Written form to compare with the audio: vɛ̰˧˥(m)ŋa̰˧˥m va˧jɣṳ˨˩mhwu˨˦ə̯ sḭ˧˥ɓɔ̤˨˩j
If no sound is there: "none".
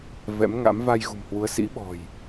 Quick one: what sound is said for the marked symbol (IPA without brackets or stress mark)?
m